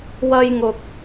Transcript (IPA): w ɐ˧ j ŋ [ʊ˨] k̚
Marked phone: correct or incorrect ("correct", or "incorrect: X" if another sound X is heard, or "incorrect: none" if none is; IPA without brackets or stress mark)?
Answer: correct